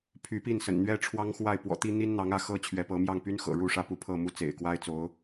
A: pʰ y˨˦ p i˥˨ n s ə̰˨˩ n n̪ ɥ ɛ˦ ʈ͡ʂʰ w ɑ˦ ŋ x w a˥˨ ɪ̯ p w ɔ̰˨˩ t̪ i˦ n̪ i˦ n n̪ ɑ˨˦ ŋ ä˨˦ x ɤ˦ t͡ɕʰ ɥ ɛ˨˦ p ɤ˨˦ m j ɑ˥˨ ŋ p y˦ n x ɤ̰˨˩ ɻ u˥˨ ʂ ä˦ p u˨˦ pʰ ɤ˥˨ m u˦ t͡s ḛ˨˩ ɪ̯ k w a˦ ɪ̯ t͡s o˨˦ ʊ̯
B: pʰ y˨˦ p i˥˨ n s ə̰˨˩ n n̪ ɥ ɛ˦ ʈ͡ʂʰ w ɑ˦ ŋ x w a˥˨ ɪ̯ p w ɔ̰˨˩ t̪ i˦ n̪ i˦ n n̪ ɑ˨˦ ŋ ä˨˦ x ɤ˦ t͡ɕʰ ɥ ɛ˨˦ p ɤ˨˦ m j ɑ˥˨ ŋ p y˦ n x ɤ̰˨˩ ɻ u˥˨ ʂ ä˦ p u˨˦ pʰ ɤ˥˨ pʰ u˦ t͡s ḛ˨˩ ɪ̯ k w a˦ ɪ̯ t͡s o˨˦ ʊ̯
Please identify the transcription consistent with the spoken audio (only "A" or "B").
A